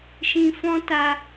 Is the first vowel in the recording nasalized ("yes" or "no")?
yes